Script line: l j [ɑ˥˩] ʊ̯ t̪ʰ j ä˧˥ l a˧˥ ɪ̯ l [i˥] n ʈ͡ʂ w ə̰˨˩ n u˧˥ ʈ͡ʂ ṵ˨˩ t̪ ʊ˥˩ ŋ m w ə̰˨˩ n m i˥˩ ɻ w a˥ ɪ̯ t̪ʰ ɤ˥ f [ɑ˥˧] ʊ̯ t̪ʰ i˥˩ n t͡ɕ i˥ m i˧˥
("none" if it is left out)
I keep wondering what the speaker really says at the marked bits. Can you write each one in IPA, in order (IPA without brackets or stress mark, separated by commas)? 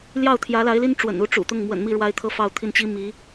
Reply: ɑ˥˩, i˥, ɑ˥˧